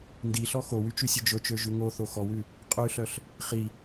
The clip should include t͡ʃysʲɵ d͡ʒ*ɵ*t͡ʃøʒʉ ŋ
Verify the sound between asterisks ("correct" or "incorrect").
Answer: correct